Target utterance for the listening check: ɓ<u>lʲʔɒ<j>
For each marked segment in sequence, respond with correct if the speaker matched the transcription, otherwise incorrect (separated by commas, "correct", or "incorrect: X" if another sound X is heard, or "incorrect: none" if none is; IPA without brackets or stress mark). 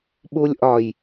correct, correct